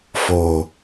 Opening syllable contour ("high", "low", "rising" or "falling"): low